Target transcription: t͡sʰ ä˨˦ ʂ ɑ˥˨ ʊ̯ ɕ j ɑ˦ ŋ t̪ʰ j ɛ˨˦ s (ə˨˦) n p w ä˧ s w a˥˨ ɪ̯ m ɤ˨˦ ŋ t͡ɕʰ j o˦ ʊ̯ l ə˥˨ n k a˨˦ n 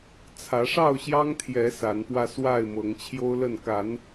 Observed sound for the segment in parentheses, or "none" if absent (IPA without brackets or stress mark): a˨˦